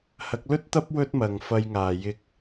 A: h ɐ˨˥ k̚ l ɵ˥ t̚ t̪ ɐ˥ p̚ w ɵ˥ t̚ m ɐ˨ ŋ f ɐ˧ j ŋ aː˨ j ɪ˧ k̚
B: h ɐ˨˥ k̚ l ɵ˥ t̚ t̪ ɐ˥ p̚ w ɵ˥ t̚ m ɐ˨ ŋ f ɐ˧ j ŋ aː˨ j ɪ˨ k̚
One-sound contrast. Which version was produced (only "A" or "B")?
A